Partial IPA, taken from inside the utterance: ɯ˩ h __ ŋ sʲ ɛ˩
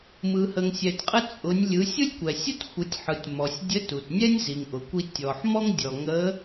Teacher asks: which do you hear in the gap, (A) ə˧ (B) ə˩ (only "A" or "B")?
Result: B